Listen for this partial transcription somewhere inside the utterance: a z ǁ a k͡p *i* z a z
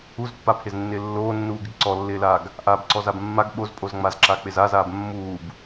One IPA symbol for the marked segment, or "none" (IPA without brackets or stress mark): ɪ